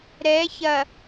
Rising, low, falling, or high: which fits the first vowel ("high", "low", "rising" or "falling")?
rising